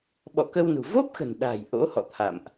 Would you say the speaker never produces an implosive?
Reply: no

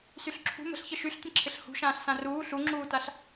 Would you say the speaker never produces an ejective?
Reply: yes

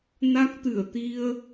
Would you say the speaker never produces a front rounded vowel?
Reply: yes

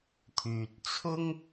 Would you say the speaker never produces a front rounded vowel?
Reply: no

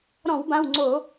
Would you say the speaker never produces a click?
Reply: no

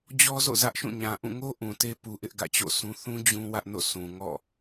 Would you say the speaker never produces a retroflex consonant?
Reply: yes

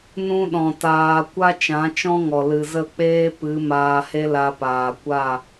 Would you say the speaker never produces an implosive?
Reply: no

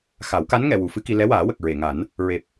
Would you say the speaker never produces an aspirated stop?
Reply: yes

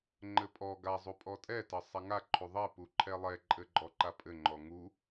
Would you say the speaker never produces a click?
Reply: no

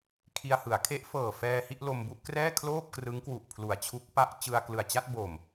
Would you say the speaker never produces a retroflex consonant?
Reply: yes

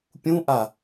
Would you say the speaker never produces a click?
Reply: yes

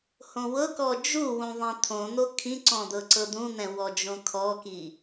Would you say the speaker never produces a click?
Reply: no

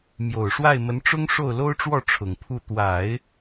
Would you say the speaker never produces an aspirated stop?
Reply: no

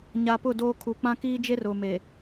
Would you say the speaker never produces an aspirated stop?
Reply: no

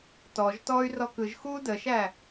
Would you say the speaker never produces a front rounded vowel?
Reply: no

